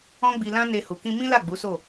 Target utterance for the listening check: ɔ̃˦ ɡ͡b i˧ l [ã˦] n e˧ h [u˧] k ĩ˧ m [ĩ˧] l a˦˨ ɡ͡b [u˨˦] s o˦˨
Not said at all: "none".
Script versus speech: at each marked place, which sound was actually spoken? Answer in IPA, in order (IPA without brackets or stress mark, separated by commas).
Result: ã˦, u˨, ĩ˦, u˨˦